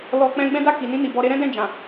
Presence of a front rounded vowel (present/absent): absent